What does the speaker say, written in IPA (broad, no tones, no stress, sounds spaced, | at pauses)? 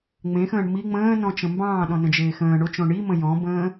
ŋ͡m ẽ x ə̃ː ɳ m i ŋ͡m ə̃ː n ɔ̃ t͡ʃ ə̃ m b ɑ̃ː ɗ ɔ̃ n ə̃ d͡ʒ eː x ə̃ː ɳ o t͡ʃ õ ɳ i m ə̃ j ɔ̃ b ə̃ː